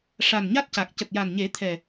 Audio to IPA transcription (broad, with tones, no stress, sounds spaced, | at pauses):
ʂ a˨˩ n ɲ a˦˥ t̚ c a˨˩ k̚ c ə˨˩ k̚ j a˨˩ n ɲ e˨˩˦ t̪ʰ ɛ˨˩